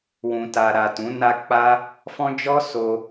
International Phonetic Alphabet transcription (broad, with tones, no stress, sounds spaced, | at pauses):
w ũ˨ t a˨ ɾ a˨ t ũ˨˦ n a˦ k͡p a˦ | f ɔ̃˦ d͡ʒ ɔ˦ s o˧